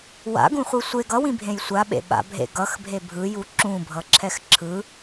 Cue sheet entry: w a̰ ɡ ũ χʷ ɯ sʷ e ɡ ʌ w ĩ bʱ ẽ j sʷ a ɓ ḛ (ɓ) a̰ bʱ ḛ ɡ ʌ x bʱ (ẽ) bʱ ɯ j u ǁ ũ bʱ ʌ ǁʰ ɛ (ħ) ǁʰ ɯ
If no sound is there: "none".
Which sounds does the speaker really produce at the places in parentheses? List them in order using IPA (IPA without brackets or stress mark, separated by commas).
ɓ, e, x